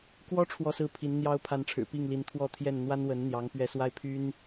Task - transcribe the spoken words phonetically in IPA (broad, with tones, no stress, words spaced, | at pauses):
kwɔ˥ ʈ͡ʂʰwɔ˥˧sɹ̩˥˩pʰi˧˥n n̪jɑ˧˥ʊ̯ pʰa˧˥nʈ͡ʂʰɻ̩˨˩ pi˥˩ŋli˧˥n t̪ʰwɔ˥˧t̪ʰjɛ˥˩n n̪wa˥nwə˧˥nn̪jɑ˧˥ŋ pɥɛ˥ swa˥˩ɪ̯pʰy˥n